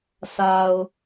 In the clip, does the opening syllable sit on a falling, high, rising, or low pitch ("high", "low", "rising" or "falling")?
low